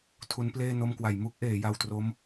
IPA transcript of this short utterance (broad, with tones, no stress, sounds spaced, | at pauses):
tʰ u˦˥ n p l eː˥˩ n o˥˩ m k w a˩˦ j m u˦˥ k̚ ʔ eː˩˦ j a˧ w t r o˦˥ m